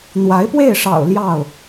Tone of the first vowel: rising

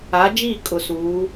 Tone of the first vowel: rising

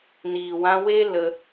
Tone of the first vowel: low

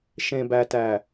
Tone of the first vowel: low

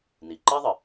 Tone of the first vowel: low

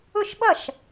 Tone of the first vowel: falling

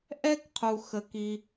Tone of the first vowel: high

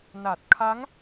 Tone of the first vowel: low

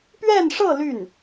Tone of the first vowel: falling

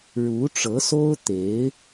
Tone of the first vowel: rising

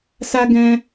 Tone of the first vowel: high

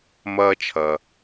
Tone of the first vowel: high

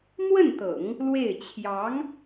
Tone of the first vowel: falling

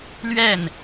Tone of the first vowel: falling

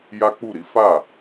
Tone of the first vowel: high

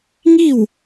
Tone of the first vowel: falling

